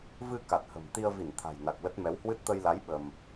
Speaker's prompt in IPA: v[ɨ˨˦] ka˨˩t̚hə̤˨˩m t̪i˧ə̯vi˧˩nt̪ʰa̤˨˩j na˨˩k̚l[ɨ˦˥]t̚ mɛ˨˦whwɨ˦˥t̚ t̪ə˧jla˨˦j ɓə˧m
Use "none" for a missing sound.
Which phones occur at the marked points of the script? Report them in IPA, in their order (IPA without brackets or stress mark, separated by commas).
ɨ˧, ə˦˥